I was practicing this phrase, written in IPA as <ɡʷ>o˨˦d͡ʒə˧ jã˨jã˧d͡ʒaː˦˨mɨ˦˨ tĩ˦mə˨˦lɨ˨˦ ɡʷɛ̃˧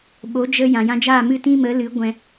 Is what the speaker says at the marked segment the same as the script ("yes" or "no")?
no